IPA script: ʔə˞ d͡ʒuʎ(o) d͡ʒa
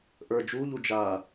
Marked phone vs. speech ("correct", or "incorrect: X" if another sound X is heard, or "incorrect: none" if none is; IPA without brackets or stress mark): incorrect: u